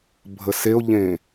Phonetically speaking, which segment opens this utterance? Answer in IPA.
bʱ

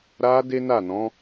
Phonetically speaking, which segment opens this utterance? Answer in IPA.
ɾ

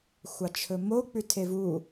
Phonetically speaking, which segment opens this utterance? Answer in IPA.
xʷ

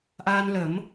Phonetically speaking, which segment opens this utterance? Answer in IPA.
ʔ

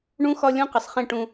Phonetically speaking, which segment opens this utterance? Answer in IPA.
ɳ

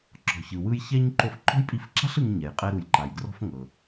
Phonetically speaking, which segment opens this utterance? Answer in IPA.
ǁ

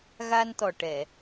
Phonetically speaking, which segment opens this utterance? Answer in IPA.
ɣ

